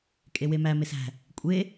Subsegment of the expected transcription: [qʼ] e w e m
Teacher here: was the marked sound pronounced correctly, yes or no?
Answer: no